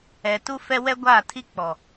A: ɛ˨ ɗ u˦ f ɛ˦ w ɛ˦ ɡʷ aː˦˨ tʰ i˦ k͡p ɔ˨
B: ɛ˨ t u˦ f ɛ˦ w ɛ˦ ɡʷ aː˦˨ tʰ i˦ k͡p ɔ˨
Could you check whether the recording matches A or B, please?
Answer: B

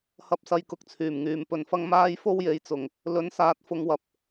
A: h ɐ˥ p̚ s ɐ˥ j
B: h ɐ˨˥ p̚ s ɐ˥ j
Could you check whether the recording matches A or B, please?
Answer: A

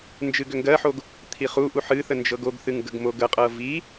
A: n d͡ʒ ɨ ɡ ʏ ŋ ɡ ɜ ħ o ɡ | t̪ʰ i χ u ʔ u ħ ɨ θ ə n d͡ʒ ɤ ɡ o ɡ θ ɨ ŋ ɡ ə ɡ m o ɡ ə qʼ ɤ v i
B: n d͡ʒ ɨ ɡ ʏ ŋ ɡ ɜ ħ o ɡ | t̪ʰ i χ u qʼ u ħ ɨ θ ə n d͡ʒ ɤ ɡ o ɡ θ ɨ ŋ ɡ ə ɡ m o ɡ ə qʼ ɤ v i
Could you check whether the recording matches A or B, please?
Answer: A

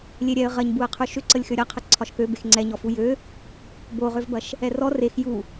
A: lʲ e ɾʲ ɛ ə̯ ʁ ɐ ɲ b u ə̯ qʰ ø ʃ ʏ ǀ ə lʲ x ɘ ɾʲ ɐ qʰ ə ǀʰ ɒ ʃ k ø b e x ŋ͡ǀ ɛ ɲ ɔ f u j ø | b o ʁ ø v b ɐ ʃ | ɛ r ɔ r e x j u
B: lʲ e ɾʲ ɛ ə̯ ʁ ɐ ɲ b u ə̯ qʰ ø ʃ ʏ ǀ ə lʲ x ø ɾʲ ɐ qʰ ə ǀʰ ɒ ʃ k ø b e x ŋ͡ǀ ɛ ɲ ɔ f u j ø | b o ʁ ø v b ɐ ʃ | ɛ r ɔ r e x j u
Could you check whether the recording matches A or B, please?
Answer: B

